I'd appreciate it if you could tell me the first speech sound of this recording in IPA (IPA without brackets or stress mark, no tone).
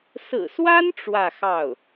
s